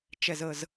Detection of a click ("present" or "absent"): absent